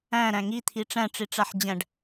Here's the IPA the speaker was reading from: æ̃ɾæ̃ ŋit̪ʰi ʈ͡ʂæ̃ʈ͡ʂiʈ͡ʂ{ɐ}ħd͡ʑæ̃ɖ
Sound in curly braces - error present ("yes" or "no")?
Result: yes